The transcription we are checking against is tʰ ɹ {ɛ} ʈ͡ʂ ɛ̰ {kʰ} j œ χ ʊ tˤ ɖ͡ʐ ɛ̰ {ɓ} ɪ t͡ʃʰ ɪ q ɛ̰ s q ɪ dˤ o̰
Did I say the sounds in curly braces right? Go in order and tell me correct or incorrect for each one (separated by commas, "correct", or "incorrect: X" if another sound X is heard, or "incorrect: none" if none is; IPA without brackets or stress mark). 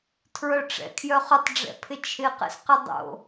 incorrect: œ, correct, incorrect: pʰ